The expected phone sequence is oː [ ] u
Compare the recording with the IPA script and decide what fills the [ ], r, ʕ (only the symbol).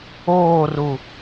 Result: r